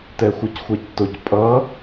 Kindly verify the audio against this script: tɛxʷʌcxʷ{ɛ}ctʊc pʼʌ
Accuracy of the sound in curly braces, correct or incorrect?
correct